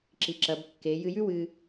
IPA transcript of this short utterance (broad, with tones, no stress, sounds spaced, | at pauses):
ǁ i˩˧ ǁ ɐ˩˧ b kː e˩˧ j ɨ˧ j ʉ˥ w ɨ˧